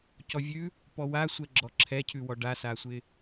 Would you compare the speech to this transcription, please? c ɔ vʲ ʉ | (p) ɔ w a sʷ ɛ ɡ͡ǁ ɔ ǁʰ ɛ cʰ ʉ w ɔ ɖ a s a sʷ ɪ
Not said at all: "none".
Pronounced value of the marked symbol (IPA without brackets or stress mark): p